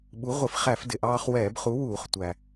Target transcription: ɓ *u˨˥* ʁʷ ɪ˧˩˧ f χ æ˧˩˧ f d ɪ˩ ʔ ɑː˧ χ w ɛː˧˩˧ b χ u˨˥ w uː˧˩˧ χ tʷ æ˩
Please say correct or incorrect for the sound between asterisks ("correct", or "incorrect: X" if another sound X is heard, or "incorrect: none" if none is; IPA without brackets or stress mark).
correct